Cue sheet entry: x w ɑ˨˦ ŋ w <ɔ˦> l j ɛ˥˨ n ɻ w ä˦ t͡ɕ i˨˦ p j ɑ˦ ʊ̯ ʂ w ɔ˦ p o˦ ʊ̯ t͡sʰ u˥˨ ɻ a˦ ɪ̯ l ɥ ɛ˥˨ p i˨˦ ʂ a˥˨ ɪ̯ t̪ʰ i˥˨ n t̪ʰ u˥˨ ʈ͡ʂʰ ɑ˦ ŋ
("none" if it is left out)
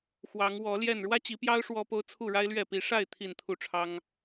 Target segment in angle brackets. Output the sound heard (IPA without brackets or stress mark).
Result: ɔ˨˦